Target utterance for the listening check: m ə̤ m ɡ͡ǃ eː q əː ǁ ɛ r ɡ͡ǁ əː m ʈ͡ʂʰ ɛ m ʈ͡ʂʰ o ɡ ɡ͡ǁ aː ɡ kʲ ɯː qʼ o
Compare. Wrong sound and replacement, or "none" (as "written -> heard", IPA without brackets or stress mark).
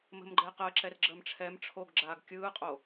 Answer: none